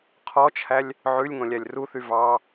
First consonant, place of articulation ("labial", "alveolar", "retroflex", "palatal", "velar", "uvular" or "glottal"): uvular